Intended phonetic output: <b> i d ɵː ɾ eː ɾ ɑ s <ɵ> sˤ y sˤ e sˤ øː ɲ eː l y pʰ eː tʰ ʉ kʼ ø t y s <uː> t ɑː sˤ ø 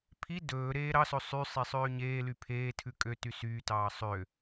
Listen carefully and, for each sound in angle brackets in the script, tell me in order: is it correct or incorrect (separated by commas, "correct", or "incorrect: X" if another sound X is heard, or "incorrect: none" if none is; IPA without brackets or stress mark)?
incorrect: pʰ, correct, incorrect: yː